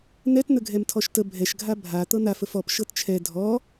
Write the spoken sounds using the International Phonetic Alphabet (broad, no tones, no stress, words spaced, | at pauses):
n̪ɛtn̪əɡʱɛm tʰɔʃtə bʱɛʃɡʱa bʱa t̪ɤn̪af əfɔp ʃɤtt͡ʃʰɛ dʱɔ